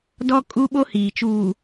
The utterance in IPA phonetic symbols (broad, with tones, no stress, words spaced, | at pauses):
dɔ˦kʼu˦ɓo˦hiː˨ t͡ʃuː˨